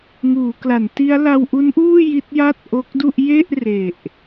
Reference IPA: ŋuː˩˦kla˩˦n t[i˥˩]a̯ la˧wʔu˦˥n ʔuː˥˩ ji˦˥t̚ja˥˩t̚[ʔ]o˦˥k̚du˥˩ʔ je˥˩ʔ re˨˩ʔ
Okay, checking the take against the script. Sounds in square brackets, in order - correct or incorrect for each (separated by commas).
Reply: incorrect, correct